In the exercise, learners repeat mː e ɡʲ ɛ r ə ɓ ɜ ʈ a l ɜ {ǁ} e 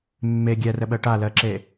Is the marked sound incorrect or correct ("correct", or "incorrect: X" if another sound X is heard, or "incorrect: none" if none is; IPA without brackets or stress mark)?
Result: correct